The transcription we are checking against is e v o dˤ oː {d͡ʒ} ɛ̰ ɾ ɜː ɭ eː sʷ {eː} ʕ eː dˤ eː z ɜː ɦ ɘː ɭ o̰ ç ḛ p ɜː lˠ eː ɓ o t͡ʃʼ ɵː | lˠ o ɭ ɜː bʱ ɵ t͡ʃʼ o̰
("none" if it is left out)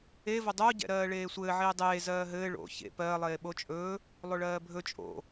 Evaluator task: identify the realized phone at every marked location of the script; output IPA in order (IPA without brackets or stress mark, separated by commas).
ɟ, ɘː